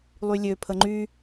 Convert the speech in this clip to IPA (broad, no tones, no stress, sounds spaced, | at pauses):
lˠ y lʲ ø pʰ ə ŋ͡ǃ y